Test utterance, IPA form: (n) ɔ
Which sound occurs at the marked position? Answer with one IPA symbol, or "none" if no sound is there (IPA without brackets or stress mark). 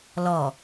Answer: l